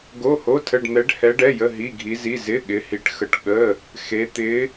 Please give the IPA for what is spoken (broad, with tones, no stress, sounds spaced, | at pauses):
ɡ o˧˥˧ h o˧˥˧ tʰ ə˧˥˧ ɖ n̪ ɛ˧˥ ɖ h ɛ˧˥ ɖ ɛ˧˥˧ j ə˧˥˧ ɦ i˧˥˧ ɡʱ i˧˥ z i˧˥˧ z ɪ˧˥˧ ɠ ɪ˧˥ h i˧˥ ʈ x ə˧˥ ʈ ɠ ə˧˥˧ | x e˧˥ t̪ ɪ˧˥